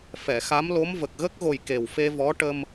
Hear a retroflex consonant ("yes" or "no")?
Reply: yes